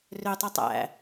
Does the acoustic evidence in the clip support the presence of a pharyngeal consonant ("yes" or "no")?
no